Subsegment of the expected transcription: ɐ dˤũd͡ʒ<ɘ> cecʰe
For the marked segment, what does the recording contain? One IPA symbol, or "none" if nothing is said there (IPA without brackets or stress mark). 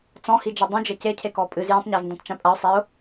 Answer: ɘ